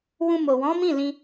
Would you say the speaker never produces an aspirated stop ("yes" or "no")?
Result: yes